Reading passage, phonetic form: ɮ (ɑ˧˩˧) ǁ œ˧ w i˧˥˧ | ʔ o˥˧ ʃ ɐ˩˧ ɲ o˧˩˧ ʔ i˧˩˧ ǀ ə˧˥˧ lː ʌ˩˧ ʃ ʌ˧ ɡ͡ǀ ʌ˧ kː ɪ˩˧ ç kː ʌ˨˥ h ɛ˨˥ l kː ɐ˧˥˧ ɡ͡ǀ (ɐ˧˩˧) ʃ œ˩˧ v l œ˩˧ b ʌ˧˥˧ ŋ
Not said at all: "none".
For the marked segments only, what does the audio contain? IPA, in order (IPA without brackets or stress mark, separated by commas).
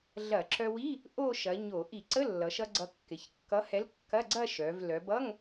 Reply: ɐ˧˩˧, ɐ˥˧